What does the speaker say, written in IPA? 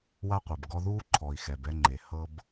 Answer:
w a˥ qʷ ɯ˩ b ɡ ɔ˦ ð uː˥ ǃʰ ɔ˨ i̯ x ɛ˨ b ɛ˥ ŋ͡ǃ e˨ h ɤ˥ b

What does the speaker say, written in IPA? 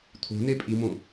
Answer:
t̪ʰ o̤ n e pʼ i m õ

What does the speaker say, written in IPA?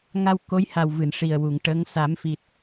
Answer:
ŋ a˧ w k o˧˥ j h a˨˩ w v ɨ˨˩˨ n ʂ i˨˩ ə̯ w u˨˩˨ ŋ ʈ ə˧˥ ŋ s a˨˩˦ m f i˨˩ t̚

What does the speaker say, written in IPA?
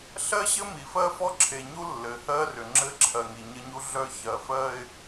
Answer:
ɬ ɜ˦ ɕ ɘ˦ m i˨ f ɜ˦ f ɔ˦ ǁʰ e˨ ɲ u˦ lː ɘ˨ h ɜ˦ r ʏ˨ ŋ͡ǁ ɘ˦ ǁʰ ɜ˨ ŋ i˨ ɲ ə˦ ɲ u˦ ɮ œ˦ ç ɜ˨ f ɜ˦ ɪ̯

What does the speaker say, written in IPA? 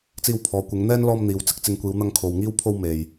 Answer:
t͡s iː˧ w pʰ ɔː˨˧ kʷ ɪ˨˧ ŋ n̪ ɛː˥ n l ɔː˧ m n̪ iː˨ w t͡s ɪ˥ k̚ t͡s ɪ˨˧ ŋ kʷ iː˨˧ w n̪ ɐ˧ ŋ kʰ o˨ w ŋ iː˥ w pʰ o˥ w m e˨ j

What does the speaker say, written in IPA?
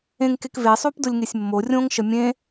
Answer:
ẽ ŋ k e k v e sˤ o p d ʊ lʲ ŋ e sʲ mː o rʲ õ ŋ ʃ ə mʲ ẽ

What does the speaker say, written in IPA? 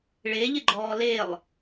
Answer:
ɭ e ʎ ɪ ɡ͡ǃ ɔː l e lˠ

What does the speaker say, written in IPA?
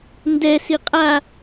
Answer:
n d ɛ s i qʼ a

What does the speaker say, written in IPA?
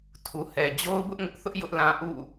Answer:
tʰ u˨ h ɛ˨ d͡ʑ o˦ ʊ̯ b ʊ˦ ʔ ŋ ʊ˦ ʔ θ ʊ˦ ʔ j ʊ˦ ʔ l ã˦ ʔ ṵ˦˨

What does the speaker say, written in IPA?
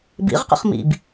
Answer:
b ḭ ʁ q ə̰ χ m ḭ b

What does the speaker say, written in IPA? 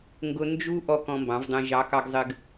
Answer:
ŋ ɡ ʊ˦ n d͡ʒ u˦ ʔ ɔ˦ k ɔ̃˦ m b ɑ̃˨˥ v dˤ ɛ̃˦ ʒ ɑ˨˥ k ɑ˦ ɡ zˤ ɘ˦ ɡ

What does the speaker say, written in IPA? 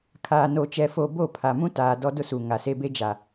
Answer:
kʰ aː˨ n o˨ t͡ʃ ɛ˨ f o˨ b o˦˨ pʰ a˨ m ũ˦ t aː˨ d ɔ˦ d ʊ˦ s u˨ ŋ a˨ s e˦ b e˦ d͡ʒ a˨

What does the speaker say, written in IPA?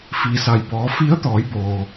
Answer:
f i˩ s a˩ j b ɔː˩˧ f i˧˥ ə̯ t̪ ɔː˩˧ j b oː˩

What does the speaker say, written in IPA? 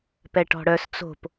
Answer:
p ɛ ʈ ɔ̤ ɽ œ s t͡s o̤ p

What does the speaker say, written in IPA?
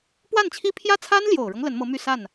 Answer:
p w a˥˩ n t͡ɕʰ i˥ pʰ j ä˥ t͡sʰ a˥ n l j o˨˩ ʊ̯ ɻ ɤ˦ ŋ l ə˧˥ n m ɤ˧˥ m y˥˧ s a˥˩ n

